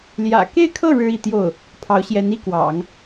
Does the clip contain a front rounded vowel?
no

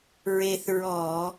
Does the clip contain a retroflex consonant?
no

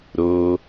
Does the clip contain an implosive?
no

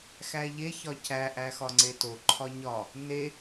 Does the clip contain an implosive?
no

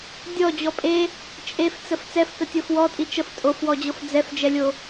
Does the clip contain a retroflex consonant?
no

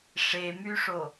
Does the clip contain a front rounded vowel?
yes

